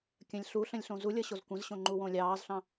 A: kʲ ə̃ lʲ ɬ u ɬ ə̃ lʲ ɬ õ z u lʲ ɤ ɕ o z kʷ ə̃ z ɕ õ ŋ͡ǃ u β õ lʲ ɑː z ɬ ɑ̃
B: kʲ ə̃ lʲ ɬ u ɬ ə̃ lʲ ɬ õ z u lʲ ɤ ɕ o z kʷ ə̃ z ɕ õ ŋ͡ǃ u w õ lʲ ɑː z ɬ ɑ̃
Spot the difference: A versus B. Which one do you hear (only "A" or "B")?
B